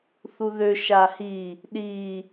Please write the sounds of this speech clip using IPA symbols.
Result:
θ u ð ø ʃ a h i | ɗ i

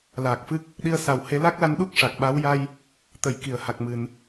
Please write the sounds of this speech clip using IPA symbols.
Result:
l aː˨˩ k̚ f ɨ˦˥ k̚ | ɗ i˧ ə̯ s a˨˩ w h e˧˥ l a˦˥ k̚ l a˧˥ n ɗ u˦˥ k̚ ʂ a˨˩ k̚ ɓ a˧˥ w j a˧ j | t̪ ə˨˩˨ j k i˨˩˨ ə̯ h a˨˩ k̚ m ɨ˨˩˨ n

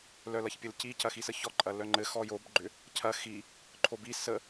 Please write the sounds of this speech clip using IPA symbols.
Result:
l œ l ɐ ç pʲ ɘ l c i c ɐ x i s ə ç ɔ ǃʼ ɐ l œ ŋ͡ǃ ɘ x ɔ j o b ɡ͡ǃ ʏ | cʰ ɐ x i | ǃʰ o b i s ə

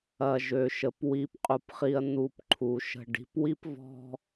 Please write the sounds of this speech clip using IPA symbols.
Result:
ɐ˨ ʒ ø˨ ʃ ə˨ p w i˨ p qʼ u˨ p χ i˨ ɐ̯ n̪ u˨ p ǃʰ u˨ ʃ ə̤˨ ɖ i̤˨˦ p w i˦ p v ɔ̤˦

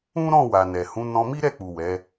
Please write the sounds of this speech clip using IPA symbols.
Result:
ũ˦ ɾ ɔ̃˦˨ w a˨ n ɛ˨ h ũ˨˦ n ɔ̃˧ m i˦ ɾ ɛ˦˨ k͡p u˨ w ɛ˨˦

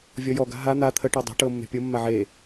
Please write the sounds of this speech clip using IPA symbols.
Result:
vʲ ɔ j ɔ ɡ a̤ ɦ a n̪ a t̪ʰ ə ʈ ɔ dˤ ɛ̤ ʈ ɤ mː e̤ pʲ ɤ mː a ʕ e

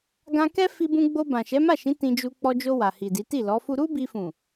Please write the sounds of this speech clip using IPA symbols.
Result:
ɡ ã˧ k ɛ˦ f i˧ b ũ˧ ɡ͡b o˧ b ã˨ ʃ ɛ˨˦ m a˦˨ ʃ ĩ˨˦ t ĩ˧ d͡ʒ u˧ k͡p ɔ˧ d͡ʒ o˧ w a˨ h i˨ d i˨˦ t i˦˨ l ɔ˨˦ f u˦ ɾ u˦ b i˧ f ũ˨

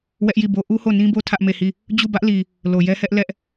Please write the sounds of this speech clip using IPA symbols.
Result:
w ɛ˦ ʔ j i˦˨ b o˦ ʔ u˦ h o˦˨ n ĩ˦ b o˦ tʰ ä˦ ʔ m e˦˨ h i˦˨ | d͡ʑ u˦˨ b ä˦ ʔ l i˨ | l o˨ j ɛ˦ h ɛ˦ ʔ l ɛ˦ ʔ

